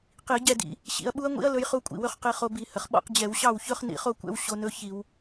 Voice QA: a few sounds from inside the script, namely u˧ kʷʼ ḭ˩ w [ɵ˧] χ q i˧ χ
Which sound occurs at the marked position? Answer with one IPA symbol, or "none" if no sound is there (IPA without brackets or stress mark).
ɵ˧